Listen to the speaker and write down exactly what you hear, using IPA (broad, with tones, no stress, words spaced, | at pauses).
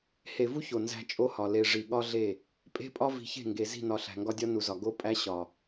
he˨vu˦ ço˨ nzæ̤˦t͡ʃʼo˦hɒ˨ le˨ ʐi˨ɠɒ˦ɮe˦˨ | pʼe̤˦pʼɒ˦ vi̤˨çe̤˦˨ŋɡe˨ zi̤˦˨nɒ˨ ɬæ̤˨ŋɡɒ˦dʲɒ˦ nu˨zɒ˨ ɡo˦pʼæ˦ɕɒ˨